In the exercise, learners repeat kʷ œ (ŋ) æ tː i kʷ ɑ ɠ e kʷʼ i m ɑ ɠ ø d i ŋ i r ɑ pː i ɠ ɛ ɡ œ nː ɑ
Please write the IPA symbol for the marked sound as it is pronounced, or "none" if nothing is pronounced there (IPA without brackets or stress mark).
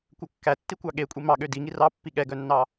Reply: kː